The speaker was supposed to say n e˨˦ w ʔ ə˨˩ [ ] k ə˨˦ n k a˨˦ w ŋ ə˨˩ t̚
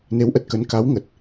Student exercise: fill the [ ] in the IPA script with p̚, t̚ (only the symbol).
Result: t̚